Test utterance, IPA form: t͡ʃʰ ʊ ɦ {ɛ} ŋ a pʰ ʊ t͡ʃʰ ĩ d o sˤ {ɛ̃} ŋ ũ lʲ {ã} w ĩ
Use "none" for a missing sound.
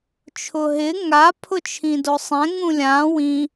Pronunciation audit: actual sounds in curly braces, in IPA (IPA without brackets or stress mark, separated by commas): ɪ, ɛ̃, ã